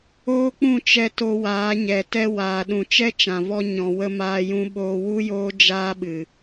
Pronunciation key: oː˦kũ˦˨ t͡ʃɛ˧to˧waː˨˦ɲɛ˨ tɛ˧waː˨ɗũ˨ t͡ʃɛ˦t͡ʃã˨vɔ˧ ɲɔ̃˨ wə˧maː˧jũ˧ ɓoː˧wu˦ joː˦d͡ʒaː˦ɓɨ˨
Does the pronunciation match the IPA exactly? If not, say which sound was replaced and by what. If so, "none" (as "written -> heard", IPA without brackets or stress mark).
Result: k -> k͡p